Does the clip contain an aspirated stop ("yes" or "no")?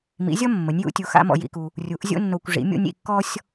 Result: no